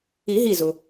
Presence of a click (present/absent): absent